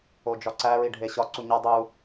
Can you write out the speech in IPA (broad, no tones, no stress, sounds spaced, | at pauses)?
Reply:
o d͡ʒ ɒ ǀ æ ɹ i ɖʱ e ɕ ɒ ǀ u ɲ ɒ dˤ u